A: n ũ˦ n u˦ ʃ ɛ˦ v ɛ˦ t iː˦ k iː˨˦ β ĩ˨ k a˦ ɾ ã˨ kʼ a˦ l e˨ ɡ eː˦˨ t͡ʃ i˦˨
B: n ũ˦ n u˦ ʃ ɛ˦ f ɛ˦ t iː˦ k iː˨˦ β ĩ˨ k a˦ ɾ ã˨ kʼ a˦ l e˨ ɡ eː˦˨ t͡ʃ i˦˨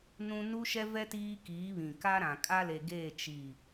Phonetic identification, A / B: A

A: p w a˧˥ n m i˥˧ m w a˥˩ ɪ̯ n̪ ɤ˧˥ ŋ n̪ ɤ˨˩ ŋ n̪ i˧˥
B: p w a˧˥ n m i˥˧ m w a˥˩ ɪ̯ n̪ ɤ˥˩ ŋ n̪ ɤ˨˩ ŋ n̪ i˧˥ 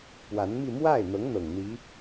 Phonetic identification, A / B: A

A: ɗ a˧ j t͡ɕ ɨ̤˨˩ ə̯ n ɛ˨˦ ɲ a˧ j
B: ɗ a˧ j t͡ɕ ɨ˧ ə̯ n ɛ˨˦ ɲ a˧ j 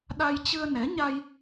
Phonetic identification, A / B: B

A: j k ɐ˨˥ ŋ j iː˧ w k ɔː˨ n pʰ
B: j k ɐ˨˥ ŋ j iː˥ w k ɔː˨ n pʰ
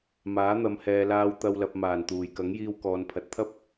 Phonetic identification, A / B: A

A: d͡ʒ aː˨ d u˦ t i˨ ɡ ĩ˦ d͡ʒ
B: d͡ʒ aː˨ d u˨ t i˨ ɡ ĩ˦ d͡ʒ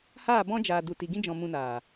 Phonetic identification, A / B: B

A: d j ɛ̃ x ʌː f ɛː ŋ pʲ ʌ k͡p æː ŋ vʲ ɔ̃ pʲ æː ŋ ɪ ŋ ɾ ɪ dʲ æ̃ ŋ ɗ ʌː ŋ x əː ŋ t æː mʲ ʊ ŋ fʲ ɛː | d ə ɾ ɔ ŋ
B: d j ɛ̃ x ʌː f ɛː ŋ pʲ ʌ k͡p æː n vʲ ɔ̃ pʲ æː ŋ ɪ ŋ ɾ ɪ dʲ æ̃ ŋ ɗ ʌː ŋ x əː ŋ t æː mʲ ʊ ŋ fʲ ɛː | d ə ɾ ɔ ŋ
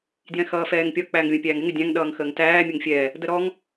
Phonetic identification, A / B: A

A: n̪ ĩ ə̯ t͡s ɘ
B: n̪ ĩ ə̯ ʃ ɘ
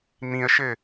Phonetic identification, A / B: B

